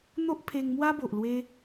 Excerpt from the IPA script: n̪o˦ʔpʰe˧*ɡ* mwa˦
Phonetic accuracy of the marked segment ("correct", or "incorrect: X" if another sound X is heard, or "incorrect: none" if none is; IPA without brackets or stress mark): incorrect: ŋ